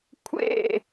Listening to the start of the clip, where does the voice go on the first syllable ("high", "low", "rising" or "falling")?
falling